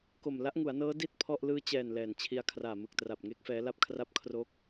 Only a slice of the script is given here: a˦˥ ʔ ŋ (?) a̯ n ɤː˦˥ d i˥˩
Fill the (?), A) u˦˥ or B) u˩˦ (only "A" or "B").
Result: B